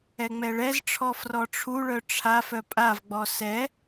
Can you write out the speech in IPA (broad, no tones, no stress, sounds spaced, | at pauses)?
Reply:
ɛ ŋ͡m ɛ ɭ ɛ z ʈ͡ʂʰ ɔ f r ɔ ʈ͡ʂʰ u ɭ œ ʈ͡ʂʰ a f œ pʼ a v ɡ͡b ɔ s ɛ